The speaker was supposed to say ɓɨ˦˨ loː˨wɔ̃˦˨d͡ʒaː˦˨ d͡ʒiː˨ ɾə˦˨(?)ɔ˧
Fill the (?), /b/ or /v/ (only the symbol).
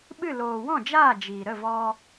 v